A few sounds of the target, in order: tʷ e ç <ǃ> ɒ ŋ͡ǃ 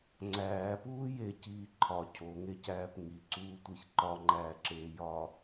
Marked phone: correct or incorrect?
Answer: correct